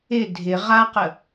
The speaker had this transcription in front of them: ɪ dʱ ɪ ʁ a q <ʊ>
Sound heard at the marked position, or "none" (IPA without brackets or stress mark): ə